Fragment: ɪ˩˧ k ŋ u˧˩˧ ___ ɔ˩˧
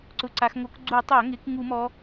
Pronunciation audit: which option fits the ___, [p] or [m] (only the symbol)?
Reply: m